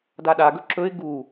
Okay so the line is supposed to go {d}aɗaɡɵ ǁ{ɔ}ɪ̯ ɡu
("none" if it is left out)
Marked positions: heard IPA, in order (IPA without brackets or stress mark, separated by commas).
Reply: d, ɵ